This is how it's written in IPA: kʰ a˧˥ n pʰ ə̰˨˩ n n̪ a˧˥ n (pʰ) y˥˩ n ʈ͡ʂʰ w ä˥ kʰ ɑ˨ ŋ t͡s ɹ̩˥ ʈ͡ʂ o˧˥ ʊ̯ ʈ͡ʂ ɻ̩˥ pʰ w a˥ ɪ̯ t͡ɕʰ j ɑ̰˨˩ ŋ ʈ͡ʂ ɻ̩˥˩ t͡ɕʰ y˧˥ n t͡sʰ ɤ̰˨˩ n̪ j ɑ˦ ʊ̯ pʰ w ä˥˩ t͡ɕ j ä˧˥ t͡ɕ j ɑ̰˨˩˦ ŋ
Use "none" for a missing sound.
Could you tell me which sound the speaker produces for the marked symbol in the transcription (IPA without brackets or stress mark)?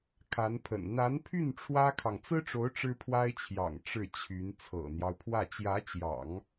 pʰ